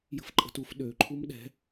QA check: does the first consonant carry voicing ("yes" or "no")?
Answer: yes